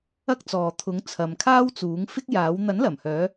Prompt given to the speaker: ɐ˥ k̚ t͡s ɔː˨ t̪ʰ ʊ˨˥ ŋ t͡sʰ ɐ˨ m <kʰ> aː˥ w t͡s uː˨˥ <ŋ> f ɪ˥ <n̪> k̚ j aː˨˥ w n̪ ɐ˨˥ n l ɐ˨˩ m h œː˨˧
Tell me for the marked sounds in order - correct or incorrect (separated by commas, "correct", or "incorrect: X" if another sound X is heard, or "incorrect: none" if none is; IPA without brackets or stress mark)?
correct, correct, incorrect: none